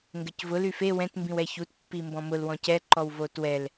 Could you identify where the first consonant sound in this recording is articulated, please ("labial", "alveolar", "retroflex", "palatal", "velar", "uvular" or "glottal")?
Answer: velar